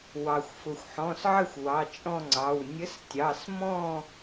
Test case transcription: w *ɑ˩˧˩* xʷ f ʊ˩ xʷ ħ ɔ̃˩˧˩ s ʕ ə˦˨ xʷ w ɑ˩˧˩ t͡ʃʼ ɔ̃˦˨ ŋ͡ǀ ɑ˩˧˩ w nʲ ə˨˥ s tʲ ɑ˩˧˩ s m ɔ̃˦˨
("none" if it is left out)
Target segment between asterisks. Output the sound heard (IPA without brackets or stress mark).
ɑ˩